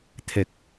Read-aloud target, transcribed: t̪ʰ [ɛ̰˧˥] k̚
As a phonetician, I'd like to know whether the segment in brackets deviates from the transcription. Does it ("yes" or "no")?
yes